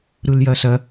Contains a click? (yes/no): no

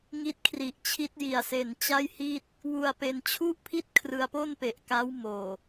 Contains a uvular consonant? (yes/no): no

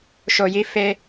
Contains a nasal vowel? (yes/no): no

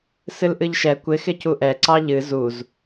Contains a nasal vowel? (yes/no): no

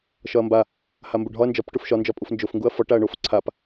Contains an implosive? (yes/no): no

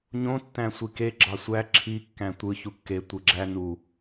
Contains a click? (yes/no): yes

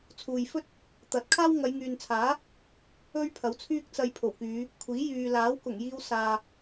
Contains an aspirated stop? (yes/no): yes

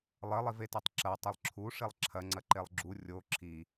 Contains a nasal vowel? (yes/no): no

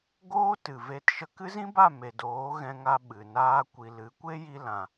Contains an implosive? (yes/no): yes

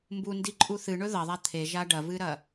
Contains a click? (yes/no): yes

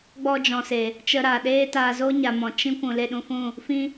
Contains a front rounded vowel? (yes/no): no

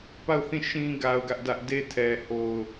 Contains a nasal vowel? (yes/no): yes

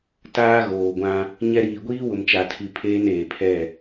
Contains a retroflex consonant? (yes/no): no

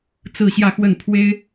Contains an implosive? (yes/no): no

